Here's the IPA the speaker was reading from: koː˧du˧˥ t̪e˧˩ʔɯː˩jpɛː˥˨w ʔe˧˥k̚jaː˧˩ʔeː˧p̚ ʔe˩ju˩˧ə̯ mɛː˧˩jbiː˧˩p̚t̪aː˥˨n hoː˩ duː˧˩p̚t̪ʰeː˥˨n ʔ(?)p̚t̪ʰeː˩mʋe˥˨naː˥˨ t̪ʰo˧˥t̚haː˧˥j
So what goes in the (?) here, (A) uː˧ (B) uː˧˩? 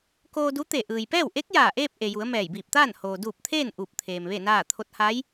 B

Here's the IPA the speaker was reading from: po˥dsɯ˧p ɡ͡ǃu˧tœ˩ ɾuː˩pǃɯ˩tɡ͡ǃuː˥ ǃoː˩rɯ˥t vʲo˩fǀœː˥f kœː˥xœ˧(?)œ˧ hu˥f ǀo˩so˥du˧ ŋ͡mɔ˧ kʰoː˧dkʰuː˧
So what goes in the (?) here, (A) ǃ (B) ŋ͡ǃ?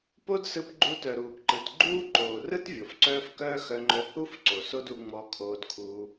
B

